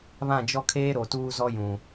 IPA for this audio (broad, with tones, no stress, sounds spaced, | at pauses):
β ã˦˨ d͡ʒ ɔ˦ kʰ eː˦ ɾ o˨ t uː˦ z ɔ˦ j ũ˨